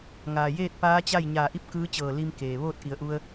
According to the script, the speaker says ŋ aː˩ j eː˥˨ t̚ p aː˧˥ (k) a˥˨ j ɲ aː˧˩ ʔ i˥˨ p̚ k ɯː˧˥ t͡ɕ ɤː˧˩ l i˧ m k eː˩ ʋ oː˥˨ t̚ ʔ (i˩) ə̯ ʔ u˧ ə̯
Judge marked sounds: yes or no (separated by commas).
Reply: no, no